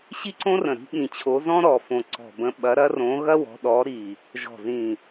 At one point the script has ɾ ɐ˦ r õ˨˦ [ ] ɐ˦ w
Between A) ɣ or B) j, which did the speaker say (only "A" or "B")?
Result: A